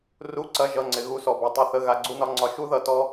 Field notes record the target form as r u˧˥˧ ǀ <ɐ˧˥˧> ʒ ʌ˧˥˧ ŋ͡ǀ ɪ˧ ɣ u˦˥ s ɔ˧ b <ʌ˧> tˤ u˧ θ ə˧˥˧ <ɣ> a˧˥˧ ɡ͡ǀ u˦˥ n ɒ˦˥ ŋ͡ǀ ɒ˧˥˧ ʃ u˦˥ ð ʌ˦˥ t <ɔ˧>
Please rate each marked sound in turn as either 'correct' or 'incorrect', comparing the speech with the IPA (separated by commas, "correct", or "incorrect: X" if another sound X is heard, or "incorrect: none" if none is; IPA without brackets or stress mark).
correct, incorrect: a˧, correct, incorrect: ɔ˦˥